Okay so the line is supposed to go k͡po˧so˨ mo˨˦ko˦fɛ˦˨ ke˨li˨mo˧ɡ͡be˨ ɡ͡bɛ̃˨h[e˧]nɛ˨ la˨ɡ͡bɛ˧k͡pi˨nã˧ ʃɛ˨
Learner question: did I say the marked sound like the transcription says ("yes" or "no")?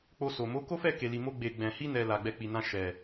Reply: no